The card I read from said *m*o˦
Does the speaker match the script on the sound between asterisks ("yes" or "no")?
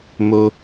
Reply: yes